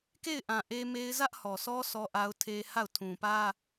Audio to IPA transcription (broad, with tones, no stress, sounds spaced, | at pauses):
k e˦˨ ɪ̯ ʔ ã˨ ʔ e˦ m e˦ ɪ̯ z ä˦ ʔ h ɔ˨ sʰ ɔ˦ sʰ ɔ˦ ʔ a˦ ʊ̯ tʰ e˦ h a˦˨ ʊ̯ tʰ ũ˨ p ä˦